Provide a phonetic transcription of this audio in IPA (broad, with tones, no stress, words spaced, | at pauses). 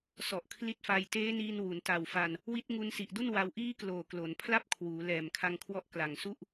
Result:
sɔ˨˩ʔkʰli˦˥t̚fa˧j teː˦˥niː˧nwu˩˦n ta˨˩wfa˧n | wi˦˥t̚ŋu˧n si˨˩ʔdu˥˩nwa˧w ʔiː˦˥ kloː˨˩klo˩˦n pʰla˥˩p̚kʰwuː˩˦ lɛː˨˩mkʰa˧ŋkʰwɔ˦˥ʔ kla˨˩ŋsu˥˩ʔ